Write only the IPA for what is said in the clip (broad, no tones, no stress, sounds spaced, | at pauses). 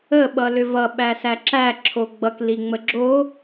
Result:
ə ɓ ʌ l ʏ v ʌ ɓ æ s æ ǁ æ ǁʰ o ɡ͡b ʌ k l i ŋ͡m ə ɡ͡ǁ o